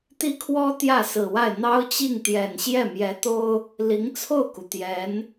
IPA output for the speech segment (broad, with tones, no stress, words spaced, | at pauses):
t̪i˥kʰwɔ˥ t̪jä˥˩sɹ̩˨˩wa˥˩ɪ̯ n̪ɑ˥ʊ̯t͡ɕi˥˩ŋt̪jɛ˨˩n ɕjɛ˥˩mjɛ˧˥t̪o˥ʊ̯ | li˧˥ŋt͡sʰo˥˩ʊ̯ku˩ t̪jɛ˧˥n